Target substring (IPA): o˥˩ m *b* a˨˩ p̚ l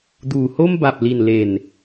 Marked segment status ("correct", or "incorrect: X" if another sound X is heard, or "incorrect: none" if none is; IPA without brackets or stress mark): correct